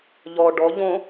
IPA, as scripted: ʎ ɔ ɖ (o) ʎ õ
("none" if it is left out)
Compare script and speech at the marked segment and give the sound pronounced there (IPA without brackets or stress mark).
ɔ